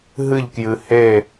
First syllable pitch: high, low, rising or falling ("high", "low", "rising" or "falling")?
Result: falling